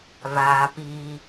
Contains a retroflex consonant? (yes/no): no